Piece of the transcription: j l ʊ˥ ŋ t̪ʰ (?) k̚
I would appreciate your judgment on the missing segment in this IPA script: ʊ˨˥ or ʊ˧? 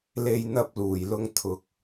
ʊ˧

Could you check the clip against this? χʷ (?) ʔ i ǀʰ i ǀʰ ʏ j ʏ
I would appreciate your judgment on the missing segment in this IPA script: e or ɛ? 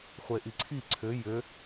e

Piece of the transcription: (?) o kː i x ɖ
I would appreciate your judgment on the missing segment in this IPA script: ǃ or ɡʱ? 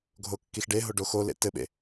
ɡʱ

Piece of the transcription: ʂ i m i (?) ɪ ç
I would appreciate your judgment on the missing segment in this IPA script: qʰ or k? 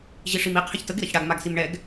qʰ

